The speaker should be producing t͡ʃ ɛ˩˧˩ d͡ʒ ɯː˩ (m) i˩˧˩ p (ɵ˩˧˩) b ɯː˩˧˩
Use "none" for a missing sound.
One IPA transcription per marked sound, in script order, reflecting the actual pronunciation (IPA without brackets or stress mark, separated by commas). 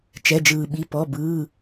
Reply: ɓ, ɔ˩˧˩